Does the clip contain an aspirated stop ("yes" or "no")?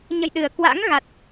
no